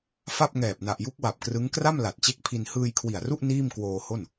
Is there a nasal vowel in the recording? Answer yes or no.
no